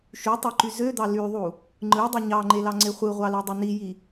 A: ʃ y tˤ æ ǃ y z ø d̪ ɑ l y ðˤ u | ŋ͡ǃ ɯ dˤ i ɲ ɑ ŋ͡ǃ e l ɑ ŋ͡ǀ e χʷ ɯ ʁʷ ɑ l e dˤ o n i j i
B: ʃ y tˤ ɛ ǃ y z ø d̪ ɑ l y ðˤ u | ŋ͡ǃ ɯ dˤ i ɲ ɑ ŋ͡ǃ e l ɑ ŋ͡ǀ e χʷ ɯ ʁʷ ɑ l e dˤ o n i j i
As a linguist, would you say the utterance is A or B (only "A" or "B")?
A